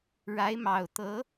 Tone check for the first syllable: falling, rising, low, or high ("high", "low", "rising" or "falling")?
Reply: rising